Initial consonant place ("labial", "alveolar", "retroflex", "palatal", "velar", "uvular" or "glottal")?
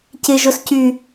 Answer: palatal